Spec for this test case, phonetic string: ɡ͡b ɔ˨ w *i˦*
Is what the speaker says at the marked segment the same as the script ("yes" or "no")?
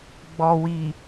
no